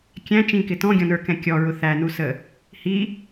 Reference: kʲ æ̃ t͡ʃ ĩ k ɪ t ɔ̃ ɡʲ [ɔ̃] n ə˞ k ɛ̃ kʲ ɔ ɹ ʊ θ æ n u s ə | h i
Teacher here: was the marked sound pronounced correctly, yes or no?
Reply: yes